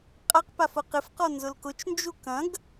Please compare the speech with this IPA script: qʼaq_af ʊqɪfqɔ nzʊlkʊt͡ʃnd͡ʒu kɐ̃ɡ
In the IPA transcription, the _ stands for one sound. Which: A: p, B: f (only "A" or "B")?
A